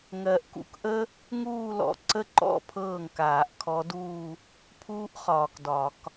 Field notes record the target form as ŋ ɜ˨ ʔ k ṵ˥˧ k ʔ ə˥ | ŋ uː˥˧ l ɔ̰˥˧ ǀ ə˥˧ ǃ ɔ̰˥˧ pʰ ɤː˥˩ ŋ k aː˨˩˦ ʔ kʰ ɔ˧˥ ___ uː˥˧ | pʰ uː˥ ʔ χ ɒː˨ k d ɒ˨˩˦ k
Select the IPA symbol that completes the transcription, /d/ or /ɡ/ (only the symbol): d